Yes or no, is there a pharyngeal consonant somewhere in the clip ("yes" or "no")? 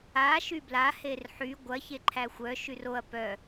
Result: yes